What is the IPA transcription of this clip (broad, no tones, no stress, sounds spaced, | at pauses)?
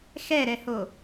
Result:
x ɛ ɾ ɛ h o